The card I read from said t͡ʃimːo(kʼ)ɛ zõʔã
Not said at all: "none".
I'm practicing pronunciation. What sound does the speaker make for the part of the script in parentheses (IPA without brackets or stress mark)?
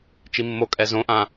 kʼ